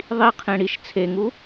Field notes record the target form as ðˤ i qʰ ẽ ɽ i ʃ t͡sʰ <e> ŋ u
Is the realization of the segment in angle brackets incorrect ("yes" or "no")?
no